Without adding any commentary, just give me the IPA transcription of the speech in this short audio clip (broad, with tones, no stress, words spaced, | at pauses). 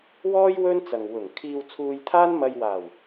wɔː˥j wɵ˥nt͡sɐ˨ŋ wʊ˨˩ŋ kʰiː˧wt͡sʰuː˧jt̪ʰaː˥nmɐ˧j waː˨˩w